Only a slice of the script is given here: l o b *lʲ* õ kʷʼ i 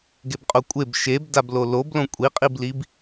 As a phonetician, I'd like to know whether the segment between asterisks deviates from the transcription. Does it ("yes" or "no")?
yes